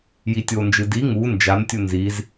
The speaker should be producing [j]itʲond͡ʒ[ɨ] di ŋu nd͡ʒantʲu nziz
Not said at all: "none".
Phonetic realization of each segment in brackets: j, ɨ

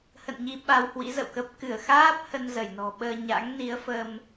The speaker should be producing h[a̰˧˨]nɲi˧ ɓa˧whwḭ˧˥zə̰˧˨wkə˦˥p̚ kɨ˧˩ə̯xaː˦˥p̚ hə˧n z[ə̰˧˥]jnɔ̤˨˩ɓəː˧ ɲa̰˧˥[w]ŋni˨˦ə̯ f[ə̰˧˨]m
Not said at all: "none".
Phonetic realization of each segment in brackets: ə̰˧˨, ə˧˩, none, ə˧

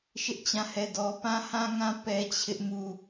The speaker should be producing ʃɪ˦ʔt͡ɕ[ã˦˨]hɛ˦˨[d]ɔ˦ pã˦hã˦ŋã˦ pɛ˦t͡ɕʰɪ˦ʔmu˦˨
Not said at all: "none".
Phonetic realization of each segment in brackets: ã˦˨, d

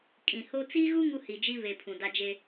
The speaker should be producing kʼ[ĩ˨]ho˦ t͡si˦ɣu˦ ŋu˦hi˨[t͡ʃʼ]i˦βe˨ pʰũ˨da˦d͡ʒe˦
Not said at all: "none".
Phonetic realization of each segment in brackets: ĩ˨, d͡ʒ

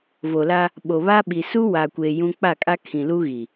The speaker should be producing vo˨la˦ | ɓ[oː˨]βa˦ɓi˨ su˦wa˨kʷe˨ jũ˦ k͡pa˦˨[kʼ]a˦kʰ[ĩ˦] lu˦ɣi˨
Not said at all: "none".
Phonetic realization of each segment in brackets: o˨, kʼ, ĩ˨

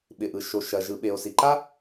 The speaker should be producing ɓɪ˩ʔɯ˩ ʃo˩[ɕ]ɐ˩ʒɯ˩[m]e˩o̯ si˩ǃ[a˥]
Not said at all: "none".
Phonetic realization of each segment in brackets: ʃ, ɓ, a˥

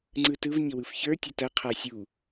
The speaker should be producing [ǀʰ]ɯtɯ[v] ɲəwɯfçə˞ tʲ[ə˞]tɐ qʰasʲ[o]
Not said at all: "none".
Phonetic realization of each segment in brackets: ŋ͡ǀ, v, ɐ, u

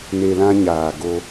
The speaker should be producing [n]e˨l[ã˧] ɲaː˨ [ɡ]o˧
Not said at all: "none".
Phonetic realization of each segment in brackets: n, ã˧, ɡ

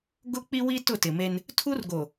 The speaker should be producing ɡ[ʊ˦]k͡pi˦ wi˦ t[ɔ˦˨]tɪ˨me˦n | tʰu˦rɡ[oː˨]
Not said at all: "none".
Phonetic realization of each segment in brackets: ʊ˦, ʊ˦˨, o˨

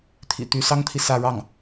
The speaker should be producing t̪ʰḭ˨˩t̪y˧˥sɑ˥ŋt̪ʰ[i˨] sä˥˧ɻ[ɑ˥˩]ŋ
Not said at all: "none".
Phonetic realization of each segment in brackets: i˨, ɑ˥˩

